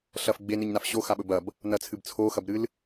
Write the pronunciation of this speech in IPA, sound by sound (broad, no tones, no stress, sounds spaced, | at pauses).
ɬ ɐ f ɡ͡b e n ɨ ɲ n a f ɕ o x a ɓ ɵ b ɐ b | n ɐ t͡sʰ ɨ b t͡sʰ o x ɐ b ɾ ɨ l